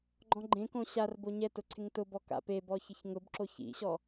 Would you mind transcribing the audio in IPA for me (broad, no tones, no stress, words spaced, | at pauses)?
ɡ͡ǃɔ̃ɡ͡ǃẽkõ ɕar boɲɛtʊ ǀʰɪŋtʊbɔ ka̰pebɔ çɪçŋʊbǁo çḭɕɔ